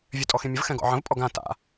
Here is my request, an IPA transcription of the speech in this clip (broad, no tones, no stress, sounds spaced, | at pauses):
vʲ ø tʼ ɔ x ĩ mʲ ə v x ɛ̃ ɡ ɔ̰ ʕ ə̃ v pʼ ɔ ɡ ã t a̰